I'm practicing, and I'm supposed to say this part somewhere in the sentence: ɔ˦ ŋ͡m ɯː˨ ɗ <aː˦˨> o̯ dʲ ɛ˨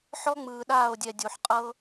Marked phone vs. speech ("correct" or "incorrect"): correct